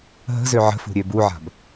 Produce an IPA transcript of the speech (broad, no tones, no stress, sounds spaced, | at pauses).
ɦ ə̤ z ø ʕ ə̤ f ṳ ɾʲ ø b u ʕ a̤ b